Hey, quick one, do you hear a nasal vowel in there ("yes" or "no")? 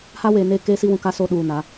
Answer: yes